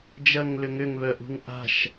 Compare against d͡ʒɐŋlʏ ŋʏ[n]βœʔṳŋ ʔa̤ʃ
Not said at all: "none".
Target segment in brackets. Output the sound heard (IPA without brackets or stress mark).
ŋ